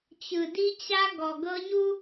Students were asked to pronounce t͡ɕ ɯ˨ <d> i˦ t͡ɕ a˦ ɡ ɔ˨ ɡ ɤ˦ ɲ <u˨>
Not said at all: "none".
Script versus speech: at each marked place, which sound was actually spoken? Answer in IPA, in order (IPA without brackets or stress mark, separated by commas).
d, u˦